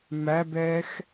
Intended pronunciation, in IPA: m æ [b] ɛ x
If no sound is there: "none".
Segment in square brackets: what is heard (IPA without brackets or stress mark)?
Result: b